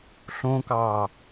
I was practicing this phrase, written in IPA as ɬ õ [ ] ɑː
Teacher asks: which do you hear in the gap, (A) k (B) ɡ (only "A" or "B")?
A